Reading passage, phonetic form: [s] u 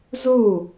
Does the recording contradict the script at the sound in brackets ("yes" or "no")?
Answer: yes